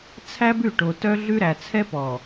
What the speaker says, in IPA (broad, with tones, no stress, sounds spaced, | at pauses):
t͡sʰ æ˦ b ʉ˦˨ ʈ o˨ t œ˦ ɮ ʉ˦ ɾ æ˨ t͡sʰ ɛ˦ p ɔ˨